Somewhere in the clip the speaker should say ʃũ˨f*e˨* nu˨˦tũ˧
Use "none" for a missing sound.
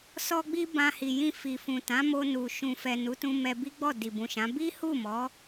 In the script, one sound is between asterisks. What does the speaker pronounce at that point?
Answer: ɛ˨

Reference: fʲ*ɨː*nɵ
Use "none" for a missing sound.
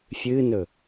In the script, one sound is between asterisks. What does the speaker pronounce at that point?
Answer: ɨː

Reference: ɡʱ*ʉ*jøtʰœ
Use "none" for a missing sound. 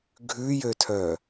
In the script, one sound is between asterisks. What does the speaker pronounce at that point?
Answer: ʉ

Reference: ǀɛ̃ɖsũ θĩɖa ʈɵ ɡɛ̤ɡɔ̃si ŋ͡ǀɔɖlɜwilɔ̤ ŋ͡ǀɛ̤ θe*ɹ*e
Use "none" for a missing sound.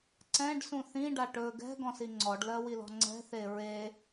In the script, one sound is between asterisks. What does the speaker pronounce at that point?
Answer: ɹ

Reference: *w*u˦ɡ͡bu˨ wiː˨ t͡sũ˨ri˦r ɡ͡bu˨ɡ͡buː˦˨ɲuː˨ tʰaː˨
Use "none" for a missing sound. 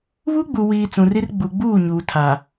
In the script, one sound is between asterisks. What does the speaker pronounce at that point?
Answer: β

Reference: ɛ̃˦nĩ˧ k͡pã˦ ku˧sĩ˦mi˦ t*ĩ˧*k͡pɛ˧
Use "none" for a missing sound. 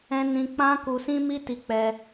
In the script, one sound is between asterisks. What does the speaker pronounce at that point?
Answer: i˧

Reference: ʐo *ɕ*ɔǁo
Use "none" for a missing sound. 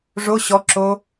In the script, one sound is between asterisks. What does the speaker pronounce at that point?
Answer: ɕ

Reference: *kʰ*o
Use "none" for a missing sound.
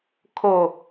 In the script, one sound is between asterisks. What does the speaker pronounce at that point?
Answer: kʰ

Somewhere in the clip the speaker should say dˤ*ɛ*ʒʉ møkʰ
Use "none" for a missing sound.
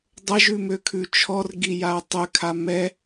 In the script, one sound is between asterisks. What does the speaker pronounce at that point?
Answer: ə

